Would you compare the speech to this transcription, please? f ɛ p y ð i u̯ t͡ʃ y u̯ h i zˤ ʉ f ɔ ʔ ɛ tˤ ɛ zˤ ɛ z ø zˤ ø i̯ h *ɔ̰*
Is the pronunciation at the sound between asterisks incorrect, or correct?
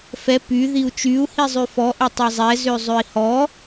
incorrect